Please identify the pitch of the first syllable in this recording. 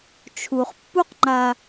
low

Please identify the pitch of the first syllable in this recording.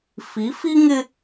rising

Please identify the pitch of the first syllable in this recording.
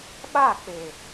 falling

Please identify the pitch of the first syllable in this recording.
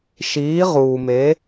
rising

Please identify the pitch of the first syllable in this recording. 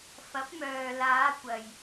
rising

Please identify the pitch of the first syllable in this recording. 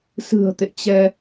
low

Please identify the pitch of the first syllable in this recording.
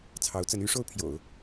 rising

